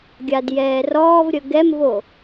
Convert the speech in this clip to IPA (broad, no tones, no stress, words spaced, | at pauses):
ɡʲadjɛːrɔːvɾʲə ɡɛmvo